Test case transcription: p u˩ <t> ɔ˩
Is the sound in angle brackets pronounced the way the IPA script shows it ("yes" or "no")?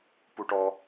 no